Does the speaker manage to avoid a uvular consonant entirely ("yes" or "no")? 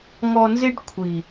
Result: yes